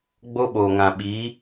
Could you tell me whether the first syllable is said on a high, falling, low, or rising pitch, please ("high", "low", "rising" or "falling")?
high